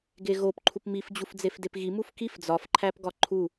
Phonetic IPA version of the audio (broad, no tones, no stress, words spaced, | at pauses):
ɡeɣop ǃʰupmif d͡ʑufd͡zefdepɣi mufkif d͡zɒfǃʰæpɡɒ ǃʰu